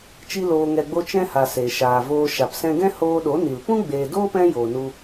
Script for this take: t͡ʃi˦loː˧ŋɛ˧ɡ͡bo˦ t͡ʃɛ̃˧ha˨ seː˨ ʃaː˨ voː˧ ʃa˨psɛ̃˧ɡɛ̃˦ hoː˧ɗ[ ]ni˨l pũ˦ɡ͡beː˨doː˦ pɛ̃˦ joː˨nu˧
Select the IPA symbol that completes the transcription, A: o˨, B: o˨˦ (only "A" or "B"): B